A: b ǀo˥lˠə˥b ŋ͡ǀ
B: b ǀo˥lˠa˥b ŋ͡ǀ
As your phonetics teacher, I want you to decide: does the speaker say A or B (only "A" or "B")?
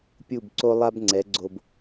B